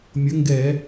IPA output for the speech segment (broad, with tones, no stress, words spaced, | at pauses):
mʲə˨˥ŋɡɛ˧˩˧